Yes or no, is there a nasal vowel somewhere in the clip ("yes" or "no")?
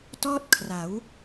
no